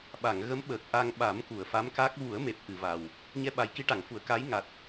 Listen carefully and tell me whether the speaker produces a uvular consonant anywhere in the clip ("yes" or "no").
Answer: no